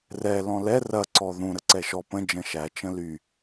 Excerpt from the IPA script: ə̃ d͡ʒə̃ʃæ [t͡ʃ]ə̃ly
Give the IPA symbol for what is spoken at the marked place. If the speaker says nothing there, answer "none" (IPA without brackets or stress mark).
t͡ʃ